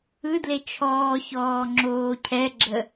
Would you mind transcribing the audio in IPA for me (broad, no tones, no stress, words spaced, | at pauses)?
ɯdle t͡ʃʰɔːçɔː ŋ͡ǁoːcʰɛɡ͡ǁə